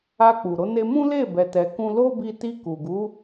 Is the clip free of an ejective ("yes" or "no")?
yes